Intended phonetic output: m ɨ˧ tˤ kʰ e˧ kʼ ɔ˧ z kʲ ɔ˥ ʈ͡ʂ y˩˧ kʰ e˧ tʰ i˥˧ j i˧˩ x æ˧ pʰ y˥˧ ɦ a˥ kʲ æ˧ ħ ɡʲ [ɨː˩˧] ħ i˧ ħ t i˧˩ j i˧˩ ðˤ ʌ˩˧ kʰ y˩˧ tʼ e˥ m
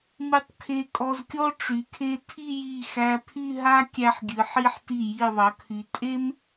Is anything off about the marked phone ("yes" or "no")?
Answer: yes